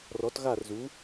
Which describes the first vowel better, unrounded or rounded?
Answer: rounded